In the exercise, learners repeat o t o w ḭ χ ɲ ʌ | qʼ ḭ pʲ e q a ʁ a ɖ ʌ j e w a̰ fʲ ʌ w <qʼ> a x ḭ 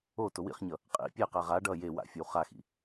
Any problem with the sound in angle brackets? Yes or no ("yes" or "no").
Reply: yes